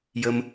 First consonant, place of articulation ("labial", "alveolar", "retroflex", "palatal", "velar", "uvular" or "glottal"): palatal